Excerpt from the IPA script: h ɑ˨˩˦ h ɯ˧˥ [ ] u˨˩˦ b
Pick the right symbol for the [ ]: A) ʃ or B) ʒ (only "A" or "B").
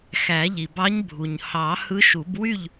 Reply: A